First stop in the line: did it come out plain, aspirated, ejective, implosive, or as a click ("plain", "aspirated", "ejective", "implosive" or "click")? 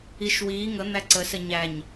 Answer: click